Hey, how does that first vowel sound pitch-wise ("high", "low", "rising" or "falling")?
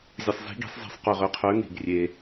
low